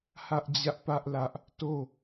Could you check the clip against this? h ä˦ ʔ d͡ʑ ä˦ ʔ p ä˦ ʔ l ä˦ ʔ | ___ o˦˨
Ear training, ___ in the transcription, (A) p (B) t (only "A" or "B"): B